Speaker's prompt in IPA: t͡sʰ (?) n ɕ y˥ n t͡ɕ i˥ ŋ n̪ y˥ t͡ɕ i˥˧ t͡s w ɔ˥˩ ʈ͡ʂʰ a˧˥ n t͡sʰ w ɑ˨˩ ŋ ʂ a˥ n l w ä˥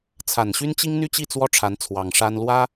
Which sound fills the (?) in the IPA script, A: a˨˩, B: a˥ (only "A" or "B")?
A